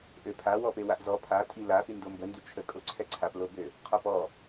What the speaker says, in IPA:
ʔ ø pʰ a w ɔ p e w a ʔ z ɔ pʰ a tʼ i l a f y n d o m b ə n d y t͡ʃʰ ə kʼ o ǀʰ ɛ ǀʰ a p l o b ø | qʰ ɔ p ɔ

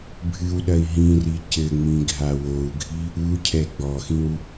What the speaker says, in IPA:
bʱ ɨ w ɗ ɐ i̯ ɦ ĩ r i c ɘ ŋ͡m ĩ ɡʱ a w o u̯ ɡʱ i | u cʰ ɛ ɡ͡b ɔ x ĩ w

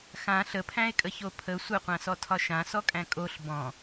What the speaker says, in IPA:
x ã ɬ ə pʰ æ̃ e̯ kʼ ə ç o pʰ ə sʷ ə qʷ ã s ɔ tʰ ɒ ʃ ã s ɔ kʼ æ̃ kʼ o ɬ b ɔ̃

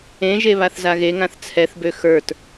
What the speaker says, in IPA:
ẽ ʒ e β a θ z a ɣ e ŋ ã θ t͡sʰ ɛ θ b ø x ə˞ t

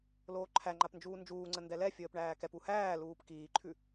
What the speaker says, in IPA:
l oː ǃʰ æ ŋ͡ǃ a p n d͡ʒ uː n d͡ʒ uː ŋ͡ǀ ə n d ɛ l ɛ fʲ əː p ɳ æː k ɛ p u h æː l uː p k iː ǃʰ ʉ

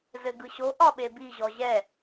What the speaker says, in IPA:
z ɘ ɡ ɯ ɕ o ʔ ɒ ɓ e b i ʑ ɔ ʑ ɛ

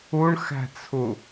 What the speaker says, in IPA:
u ɳ x æ̤ t͡sʰ u

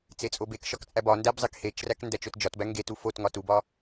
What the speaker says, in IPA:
t͡s e t͡sʼ o b e k ʃ ɒ k t͡sʼ æ b ɒ n d æ b zˤ e k h e t͡ʃ r æ k n d æ t͡ʃ o t d͡ʒ ɒ t b æ ŋ ɡ e t u f o t ŋ ɒ t u b ɒ

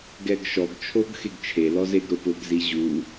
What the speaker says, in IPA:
ɡ ɛ ɡ ʃ ɔ ɡ t͡ʃʰ o ɡ x e ɡ t͡ʃʰ e l ɔ z e ɡ ɾ ʊ p ʊ ɡ z i ʑ u

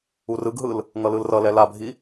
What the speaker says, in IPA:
u r ɯ ɡ ɦ ɯ l | ŋ ʌ l ɯ l r ʌ l ɛ l a bʱ i

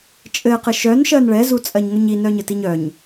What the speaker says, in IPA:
t͡ʃʼ ɘ q ɘ ʃ œ n ʃ ɜ n ɭ ɛ z u t͡sʼ ɜ ɲ ŋ œ ɲ i n œ ɲ ɘ t i ɲ œ ɲ

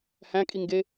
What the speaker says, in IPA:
h æ̃ kʼ i ŋ ɡ e

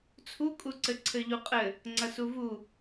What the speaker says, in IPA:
t͡sʰ u kʼ u ǀ ɘ ǀʰ ɘ ʎ u qʼ ɘ | ŋ͡ǀ ɐ s u v u

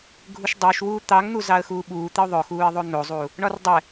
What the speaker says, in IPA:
ɡʱ u ʃ dˤ ʊː ʃ w uː t̪ ɑ ŋ n̪ u z ɑ ə̯ x uː ɓ uː t̪ e ʊ̯ ðˤ ʊ x uː ɪ̯ ðˤ o n̪ o zˤ u | ɳ ɒ r dˤ ɛ

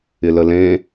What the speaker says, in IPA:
ɪ l ə l ẽ

